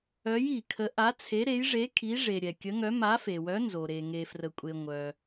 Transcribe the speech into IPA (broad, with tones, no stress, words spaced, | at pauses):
œ˧˥ji˨kʰə˧˥ ʔa˧˥t͡sʰe˧˥ ɾe˧˥jʐe˧˥ kʰi˧˥ ʐe˨ ɾʲɛ˨kʲə˧˥ŋœ˧˥ ma˧˥ fe˨wœ˧˥nzo˨ ɾe˨ ŋe˨frə˨kʷʼe˨ ŋʷœ˨